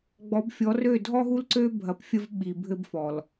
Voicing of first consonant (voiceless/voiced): voiced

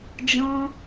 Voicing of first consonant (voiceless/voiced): voiced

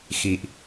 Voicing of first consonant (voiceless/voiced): voiceless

